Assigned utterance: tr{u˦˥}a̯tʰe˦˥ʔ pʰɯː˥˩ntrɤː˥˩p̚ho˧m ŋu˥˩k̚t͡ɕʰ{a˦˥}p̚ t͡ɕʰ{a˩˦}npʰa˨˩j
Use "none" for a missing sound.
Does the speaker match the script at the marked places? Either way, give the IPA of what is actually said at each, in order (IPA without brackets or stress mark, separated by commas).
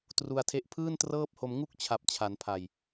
u˧, a˨˩, a˩˦